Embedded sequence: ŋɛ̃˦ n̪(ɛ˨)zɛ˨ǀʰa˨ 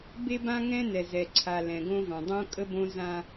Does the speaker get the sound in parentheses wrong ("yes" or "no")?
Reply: no